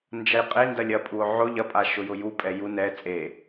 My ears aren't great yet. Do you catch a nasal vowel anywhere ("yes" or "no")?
no